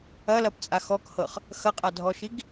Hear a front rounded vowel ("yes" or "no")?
no